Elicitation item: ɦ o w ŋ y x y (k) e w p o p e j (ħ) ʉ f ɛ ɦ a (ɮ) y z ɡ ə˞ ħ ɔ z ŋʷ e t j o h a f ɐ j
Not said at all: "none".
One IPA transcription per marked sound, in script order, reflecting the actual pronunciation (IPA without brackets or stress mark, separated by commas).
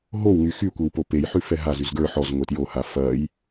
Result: kʷ, ħ, z